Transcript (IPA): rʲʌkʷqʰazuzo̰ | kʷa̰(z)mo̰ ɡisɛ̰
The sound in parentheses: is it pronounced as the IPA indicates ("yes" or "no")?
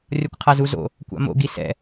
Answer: no